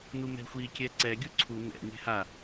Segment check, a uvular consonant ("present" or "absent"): absent